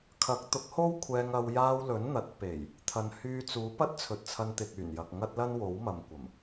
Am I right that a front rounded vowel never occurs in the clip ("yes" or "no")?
no